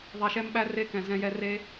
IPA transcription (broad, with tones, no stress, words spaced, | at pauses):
ðˤɛ˧ʃɛ˦mɓæ˦re˦ kɛ̃˨zɛ̃˧jɛ˧re˦